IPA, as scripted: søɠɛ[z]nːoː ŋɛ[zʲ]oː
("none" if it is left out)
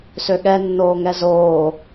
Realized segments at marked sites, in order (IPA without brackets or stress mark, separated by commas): none, z